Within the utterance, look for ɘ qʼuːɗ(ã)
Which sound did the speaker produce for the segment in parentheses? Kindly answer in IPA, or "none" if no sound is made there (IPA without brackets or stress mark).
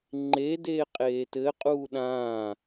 ãː